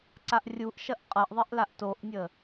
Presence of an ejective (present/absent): present